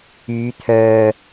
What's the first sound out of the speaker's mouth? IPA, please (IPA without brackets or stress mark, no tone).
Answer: yː